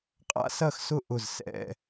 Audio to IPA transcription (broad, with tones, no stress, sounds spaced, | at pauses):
qʼ a̰˥ s ɐ˥˨ x s ʊ˥˨ ʔ ʊ˧˩ z s ɛ̰˥˨